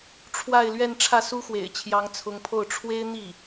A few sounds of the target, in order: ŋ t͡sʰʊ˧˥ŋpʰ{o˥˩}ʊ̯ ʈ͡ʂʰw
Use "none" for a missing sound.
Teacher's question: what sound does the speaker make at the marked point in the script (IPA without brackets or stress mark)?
o˥˩